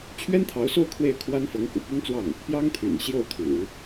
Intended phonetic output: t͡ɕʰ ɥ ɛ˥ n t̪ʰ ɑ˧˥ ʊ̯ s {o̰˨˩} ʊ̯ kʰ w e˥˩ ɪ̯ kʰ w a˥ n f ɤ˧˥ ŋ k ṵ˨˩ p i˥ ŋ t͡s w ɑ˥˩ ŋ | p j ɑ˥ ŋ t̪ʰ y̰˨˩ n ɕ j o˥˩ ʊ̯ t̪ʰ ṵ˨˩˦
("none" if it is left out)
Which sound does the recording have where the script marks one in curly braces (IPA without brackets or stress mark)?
o˥˧